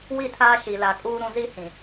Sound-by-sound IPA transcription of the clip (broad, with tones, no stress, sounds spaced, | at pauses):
w i˦˨ tʰ aː˦ ʃ i˨ l a˨ kʼ uː˦ ɾ ũ˦ z i˦ h ĩ˨